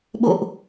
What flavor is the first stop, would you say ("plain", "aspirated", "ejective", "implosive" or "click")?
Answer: implosive